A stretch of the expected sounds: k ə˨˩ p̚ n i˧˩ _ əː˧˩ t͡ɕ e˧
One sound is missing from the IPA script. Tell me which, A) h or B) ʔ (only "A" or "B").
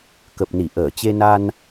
B